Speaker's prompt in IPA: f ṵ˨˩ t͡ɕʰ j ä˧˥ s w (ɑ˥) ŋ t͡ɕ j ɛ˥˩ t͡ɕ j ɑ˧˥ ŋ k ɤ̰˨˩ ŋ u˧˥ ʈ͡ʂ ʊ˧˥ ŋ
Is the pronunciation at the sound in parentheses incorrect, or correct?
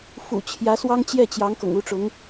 correct